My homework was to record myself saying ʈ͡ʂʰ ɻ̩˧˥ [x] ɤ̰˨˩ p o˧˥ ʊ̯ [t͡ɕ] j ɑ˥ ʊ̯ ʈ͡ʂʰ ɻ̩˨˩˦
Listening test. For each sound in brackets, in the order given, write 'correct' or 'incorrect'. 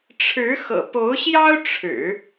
correct, incorrect: ɕ

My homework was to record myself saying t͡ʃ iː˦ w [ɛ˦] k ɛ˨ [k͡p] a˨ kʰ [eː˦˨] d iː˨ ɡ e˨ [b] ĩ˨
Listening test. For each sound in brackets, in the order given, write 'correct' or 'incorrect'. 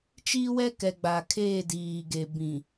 correct, incorrect: ɡ͡b, correct, correct

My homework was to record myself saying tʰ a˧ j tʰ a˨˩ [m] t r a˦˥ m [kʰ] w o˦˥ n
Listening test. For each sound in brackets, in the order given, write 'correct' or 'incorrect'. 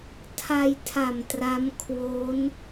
correct, correct

